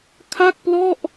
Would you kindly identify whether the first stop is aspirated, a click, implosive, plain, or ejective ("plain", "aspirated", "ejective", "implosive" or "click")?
aspirated